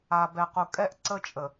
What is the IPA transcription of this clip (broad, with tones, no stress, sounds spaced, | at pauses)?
a˨ b ɛ˨ q u˨ kʼ ɛ˦ ʔ ǀ ə˦ t͡ʃʼ ə˨